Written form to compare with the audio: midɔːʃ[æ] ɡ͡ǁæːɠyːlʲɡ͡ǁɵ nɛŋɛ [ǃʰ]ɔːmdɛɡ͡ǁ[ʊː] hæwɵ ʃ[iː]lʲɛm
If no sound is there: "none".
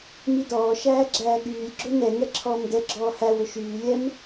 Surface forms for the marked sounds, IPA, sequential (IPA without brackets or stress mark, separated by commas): æː, ǁʰ, ɔː, yː